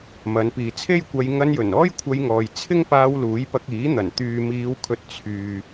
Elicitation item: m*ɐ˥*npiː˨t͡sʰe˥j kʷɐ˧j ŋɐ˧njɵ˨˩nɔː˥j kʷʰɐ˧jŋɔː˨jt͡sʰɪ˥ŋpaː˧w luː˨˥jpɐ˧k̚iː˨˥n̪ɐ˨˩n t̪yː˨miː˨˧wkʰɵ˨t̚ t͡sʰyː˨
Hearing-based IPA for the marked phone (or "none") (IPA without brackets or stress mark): ɐ˨˧